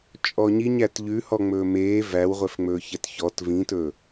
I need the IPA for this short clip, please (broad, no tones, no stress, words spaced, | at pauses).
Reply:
t͡ʃʼɔɲiɲæt ʎʉ hɔŋ͡mɵːmeː væwʁʷɛfŋ͡mɵːçɛt çɔt vĩtɵ